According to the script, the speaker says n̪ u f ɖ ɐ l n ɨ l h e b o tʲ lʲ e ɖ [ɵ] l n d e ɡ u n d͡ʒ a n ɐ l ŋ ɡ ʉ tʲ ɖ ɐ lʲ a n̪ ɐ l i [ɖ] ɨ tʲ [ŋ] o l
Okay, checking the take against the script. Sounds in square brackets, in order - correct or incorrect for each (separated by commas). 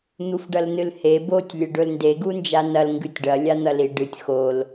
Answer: correct, correct, incorrect